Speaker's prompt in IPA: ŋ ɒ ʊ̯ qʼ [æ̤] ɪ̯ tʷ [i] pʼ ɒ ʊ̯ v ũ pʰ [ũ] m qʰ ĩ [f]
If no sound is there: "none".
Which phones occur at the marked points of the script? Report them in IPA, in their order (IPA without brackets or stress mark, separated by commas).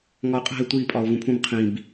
æ̤, i, ũ, b